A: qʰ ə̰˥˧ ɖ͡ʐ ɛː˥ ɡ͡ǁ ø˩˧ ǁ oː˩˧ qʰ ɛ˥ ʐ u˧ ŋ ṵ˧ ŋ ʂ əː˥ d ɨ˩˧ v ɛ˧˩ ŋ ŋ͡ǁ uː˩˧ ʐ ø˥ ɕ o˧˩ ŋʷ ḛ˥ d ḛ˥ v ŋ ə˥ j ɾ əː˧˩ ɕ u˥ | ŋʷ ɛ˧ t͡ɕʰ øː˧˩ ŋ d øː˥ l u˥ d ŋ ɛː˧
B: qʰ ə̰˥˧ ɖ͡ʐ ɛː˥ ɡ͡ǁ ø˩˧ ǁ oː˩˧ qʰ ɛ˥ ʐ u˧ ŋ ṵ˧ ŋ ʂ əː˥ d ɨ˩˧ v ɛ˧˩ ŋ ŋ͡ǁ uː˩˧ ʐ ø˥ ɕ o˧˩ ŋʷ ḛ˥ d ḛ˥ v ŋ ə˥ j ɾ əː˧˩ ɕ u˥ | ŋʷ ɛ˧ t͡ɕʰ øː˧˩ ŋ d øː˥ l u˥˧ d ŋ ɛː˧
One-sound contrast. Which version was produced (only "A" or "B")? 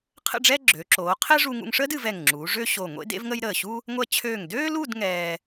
B